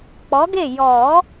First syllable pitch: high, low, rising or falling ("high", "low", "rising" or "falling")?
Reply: rising